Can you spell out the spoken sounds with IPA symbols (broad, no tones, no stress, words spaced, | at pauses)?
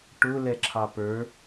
ʈʊ lɛǁʰɑpə˞